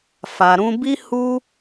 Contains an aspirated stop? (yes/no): no